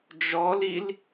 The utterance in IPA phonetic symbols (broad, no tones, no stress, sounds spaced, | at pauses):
d͡ʒ ɔ l i l